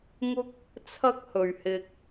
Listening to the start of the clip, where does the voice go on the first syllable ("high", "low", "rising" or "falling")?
high